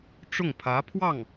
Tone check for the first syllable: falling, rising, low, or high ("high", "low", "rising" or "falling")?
falling